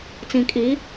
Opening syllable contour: low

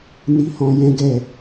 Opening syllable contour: high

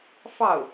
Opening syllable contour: falling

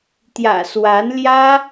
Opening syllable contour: low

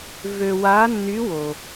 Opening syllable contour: low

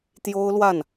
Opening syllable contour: high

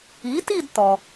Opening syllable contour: rising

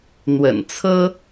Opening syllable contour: low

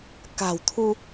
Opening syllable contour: low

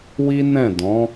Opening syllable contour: high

